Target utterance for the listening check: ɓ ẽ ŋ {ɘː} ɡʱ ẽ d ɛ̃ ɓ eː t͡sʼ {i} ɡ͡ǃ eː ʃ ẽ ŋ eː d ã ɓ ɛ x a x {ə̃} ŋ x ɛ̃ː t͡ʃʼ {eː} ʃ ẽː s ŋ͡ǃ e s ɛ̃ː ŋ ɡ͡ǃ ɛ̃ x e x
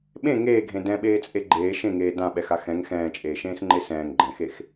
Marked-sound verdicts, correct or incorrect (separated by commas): incorrect, incorrect, incorrect, correct